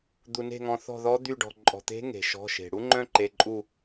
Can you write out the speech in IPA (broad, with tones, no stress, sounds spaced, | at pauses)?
d̪ u˩ n e̤˧˩ ŋ ɔ̃˩ θ ɔ̤˧˩ ð ɔ˨˦ d̪ y˧˩ ɖ ɔ̤˩ ǃʼ ɔ̤˩ t̪ e̤˨˦ ŋ e̤˩ ʃ ɔ̤˩˧˩ ʃ e̤˩ ɽ u˦ ŋ͡ǃ œ̃˦ ǃ e˩˧˩ ǃʼ u˧˩